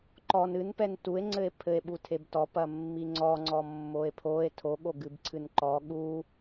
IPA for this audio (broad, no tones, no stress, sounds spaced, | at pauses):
ǃ ɔ n ɨ n p ɛ n t u e̯ ŋ͡ǀ ɘ e̯ pʰ ɘ e̯ ɓ u tʰ e b t ɔ p ɐ mː i ŋ͡ǀ ɔ ŋ͡ǀ ɔ mː o e̯ pʰ o e̯ tʰ o ɠ o ɡ ɨ b ǀʰ ɨ n ǃ ɔ ɠ u